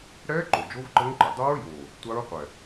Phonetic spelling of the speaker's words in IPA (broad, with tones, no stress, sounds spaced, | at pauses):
ɽ ɛː˦˥ ǃ o˨˩ d͡ʒ o˦˥ v ǃ ɤ˦˥ ŋ ǃ ɪ˨˩ dˤ o˦˥ ɹ j oː˨˩ | tʷ a˦˥ ɹ qʷ ɛ˨˩